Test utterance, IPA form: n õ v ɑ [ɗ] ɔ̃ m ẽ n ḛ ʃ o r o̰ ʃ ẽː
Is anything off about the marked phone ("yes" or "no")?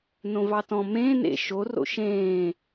yes